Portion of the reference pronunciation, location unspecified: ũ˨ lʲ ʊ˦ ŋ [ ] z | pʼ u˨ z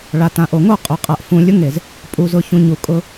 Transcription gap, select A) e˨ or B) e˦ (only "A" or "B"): A